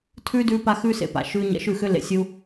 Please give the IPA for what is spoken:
tʰ ʉ˦ d ʉː˦ p a˦ x ʉː˦ s ḛ˨ p a̰˨ ʃ ʉː˧ ɲ ɛ̰˧ ʃ ʉ˦˨ x ʏ˦ l ḛ˧ sʲ u˧

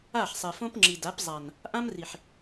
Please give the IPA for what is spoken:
a˦˨ ħ sˤ ɛ˨ f õ˦ p ŋ͡ǁ i˨ d a˨˦ p zˤ a˨ n | ʔ ã˦ m r i˨ ħ

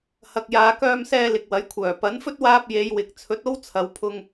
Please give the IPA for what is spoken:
h ɐ˨ k̚ j aː˨˧ k œː˧ m s ɛː˧ l ɪ˨ k̚ w ɐ˨˥ j kʷʰ œː˨˩ p ɐ˨˥ n f ɵ˥ t̚ w aː˧ p̚ j e˨˧ j w ɪ˨ k̚ t͡sʰ ɵ˨˥ t̚ o˥ w t͡sʰ ɐ˨˧ w pʰ ʊ˧ ŋ

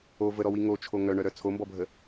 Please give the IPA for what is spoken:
o v ə ɾ ɔ w i ŋ o t͡ʃʰ o ŋ œ ɳ œ ɾ œ t͡sʰ o m b ɔ bʱ ə

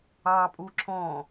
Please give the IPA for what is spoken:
ɑ pʼ u ǁʰ ɔ̃

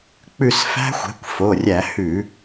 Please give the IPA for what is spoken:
k͡p ʉ˦˨ s f æ̤˦˥ xʷ ɛ̤˩˥ kʷ f o˩˧˩ rʲ æ˧˩˧ h ʉ˧˩˧

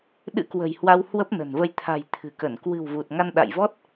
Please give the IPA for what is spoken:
ɗ ɨ̰˧˥ k w ə̤˨˩ j h w a˧ w h w ə˦˥ p̚ n ə̤˨˩ n v ə˧ j t̪ʰ a̤˨˩ j t̪ʰ ɨ̤˨˩ k ə˧˩ n k w ɨ̤˨˩ w v u˨˩ t̚ ŋ a˧ n ɗ a̰˧˨ j v ɔ˦˥ t̚

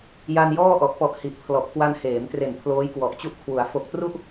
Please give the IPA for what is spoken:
j a˧ n j ɔː˥˩ ʔ ɔ˨˩ ʔ p ɔ˨˩ ʔ h i˨˩ ʔ pʰ l ɔ˨˩ ʔ k w a˧ n h eː˩˦ m t r e˨˩ n pʰ l oː˦˥ j k w ɔ˨˩ ʔ t͡ɕ u˥˩ ʔ kʰ w u˩˦ a̯ f o˨˩ k̚ t r u˥˩ ʔ

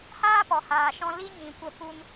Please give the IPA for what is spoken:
h aː˦ p ɔ˨ h aː˨ ʃ ɔ̃˧ l i˦ ɲ ĩ˨ kʷ ə˧ p u˦ n

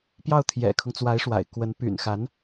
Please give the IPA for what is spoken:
p j ɑ˥˩ ʊ̯ t̪ʰ j ɛ̰˨˩ kʰ ʊ˦ ŋ t͡s w a˧˥ ɪ̯ ʂ w a̰˨˩ ɪ̯ k w ə˧˥ n p y̰˨˩ n x a˧˥ n

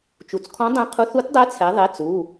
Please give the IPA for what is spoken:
t͡ʃ u˩˧ t͡s kʰ ɔ̃˧˥ dˤ ɛ̃˧˥ qʰ u˧˥ θ u˧˥ t dˤ ɛ˧˥ t͡sʰ ɛ˩˧ ðˤ e˩˧˩ t͡s u˩˧˩

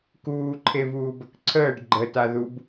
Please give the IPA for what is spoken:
k uː ǃʰ e v uː b ə k ǀʰ əː ɖ ɡ͡ǃ ə t a ð u b

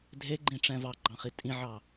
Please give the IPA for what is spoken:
dʱ e ɡ͡ǃ ĩ ʈ͡ʂ ɛ̃ v ɑ ɡ͡ǃ ɑ̃ χ i tʼ ĩ ʕ ɑ

